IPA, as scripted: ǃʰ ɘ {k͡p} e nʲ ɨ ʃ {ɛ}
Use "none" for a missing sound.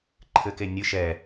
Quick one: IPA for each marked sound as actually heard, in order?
k, ɛ

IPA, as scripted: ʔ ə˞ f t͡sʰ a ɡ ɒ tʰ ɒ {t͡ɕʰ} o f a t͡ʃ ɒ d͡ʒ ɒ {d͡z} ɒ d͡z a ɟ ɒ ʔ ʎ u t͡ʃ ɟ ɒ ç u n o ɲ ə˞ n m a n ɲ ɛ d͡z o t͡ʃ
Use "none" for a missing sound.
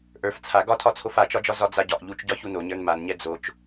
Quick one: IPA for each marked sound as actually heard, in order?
t͡sʰ, z

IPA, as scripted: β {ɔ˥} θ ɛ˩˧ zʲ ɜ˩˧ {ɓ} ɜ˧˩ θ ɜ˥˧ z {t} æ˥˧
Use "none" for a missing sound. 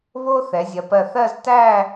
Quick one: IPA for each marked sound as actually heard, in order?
o˥, p, t

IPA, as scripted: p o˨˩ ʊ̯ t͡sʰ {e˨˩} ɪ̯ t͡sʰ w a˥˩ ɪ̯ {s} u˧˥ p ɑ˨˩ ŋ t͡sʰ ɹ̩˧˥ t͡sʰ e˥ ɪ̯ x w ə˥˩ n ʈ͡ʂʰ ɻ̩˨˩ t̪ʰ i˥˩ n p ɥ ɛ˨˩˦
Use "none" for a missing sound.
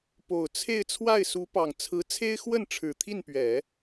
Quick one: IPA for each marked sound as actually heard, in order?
e˥˧, s

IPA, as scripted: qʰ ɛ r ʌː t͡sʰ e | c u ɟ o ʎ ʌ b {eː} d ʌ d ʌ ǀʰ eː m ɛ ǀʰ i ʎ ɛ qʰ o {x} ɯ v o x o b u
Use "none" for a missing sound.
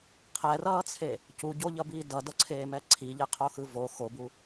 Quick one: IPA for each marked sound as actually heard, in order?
iː, x

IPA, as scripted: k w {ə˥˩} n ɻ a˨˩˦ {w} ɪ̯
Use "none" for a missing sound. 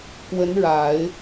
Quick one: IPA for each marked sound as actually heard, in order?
ə˧˥, none

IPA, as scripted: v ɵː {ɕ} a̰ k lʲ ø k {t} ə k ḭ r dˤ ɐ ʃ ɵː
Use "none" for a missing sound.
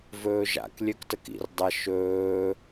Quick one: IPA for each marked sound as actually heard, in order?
ʒ, t

